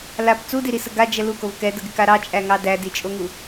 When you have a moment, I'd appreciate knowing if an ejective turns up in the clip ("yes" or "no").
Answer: yes